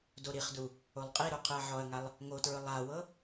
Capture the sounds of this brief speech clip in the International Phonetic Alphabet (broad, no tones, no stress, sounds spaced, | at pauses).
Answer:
d o ɾ i χ d u | o lˠ qʼ i ɾ o qʰ ɯ ɐ̯ ʕ ɔ ɐ̯ ŋ a lˠ | ŋ o t ɹ ɯ lˠ a w ɤ